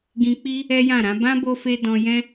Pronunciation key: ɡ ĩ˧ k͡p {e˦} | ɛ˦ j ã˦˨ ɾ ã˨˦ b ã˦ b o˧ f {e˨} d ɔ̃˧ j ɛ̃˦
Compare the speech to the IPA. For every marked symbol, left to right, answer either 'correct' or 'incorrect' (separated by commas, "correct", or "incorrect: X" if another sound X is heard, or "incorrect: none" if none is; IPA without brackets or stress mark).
incorrect: i˦, incorrect: e˧